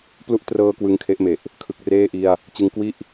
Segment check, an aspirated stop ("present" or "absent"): present